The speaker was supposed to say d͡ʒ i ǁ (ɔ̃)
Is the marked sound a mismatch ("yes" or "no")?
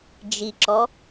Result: yes